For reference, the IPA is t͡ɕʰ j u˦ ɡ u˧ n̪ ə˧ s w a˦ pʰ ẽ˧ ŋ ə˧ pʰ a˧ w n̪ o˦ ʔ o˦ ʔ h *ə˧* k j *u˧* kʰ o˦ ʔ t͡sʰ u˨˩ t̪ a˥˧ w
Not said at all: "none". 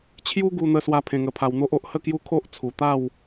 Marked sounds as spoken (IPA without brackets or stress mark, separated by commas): ə˥˧, u˦